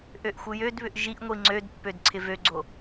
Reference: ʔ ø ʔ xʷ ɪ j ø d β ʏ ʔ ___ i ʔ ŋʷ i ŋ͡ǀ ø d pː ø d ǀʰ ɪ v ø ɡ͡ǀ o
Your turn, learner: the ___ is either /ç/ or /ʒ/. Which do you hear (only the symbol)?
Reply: ʒ